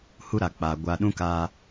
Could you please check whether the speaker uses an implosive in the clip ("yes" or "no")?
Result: yes